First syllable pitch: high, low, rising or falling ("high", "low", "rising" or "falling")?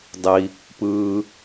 low